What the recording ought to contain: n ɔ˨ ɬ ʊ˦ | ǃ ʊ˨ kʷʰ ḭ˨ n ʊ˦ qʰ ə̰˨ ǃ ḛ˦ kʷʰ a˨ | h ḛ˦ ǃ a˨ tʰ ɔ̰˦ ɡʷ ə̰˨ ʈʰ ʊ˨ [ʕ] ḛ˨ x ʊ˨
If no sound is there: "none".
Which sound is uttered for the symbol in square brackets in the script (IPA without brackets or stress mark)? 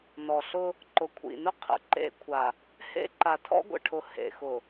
h